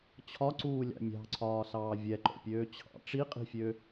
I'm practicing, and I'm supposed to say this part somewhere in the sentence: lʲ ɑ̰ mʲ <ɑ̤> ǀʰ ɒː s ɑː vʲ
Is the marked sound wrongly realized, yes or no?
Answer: no